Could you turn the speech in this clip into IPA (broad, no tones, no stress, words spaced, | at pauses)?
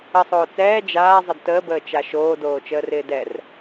əsˤoː t͡sɛː d͡ʒaːzˤəd təːbəːt͡ʃa ʃoːdoːt͡ʃəːrɪː dɛr